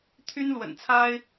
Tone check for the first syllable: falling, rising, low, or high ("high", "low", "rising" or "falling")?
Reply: high